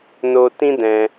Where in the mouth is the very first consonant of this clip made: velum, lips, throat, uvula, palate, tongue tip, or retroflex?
tongue tip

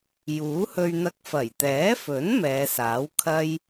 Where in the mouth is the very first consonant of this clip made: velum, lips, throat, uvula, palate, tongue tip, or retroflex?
palate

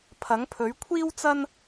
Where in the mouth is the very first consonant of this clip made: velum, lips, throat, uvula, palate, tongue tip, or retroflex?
lips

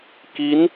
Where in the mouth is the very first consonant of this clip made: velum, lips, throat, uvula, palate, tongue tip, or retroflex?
velum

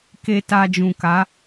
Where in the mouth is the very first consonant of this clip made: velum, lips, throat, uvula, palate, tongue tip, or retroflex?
velum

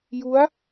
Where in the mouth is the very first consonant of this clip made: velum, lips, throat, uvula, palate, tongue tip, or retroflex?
palate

